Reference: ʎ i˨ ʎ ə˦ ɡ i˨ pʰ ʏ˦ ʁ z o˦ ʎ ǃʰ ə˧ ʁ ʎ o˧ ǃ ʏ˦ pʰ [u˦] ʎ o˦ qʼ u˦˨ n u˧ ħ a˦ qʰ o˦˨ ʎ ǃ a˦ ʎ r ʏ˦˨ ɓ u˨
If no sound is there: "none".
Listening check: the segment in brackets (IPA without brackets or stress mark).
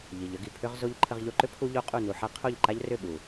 u˦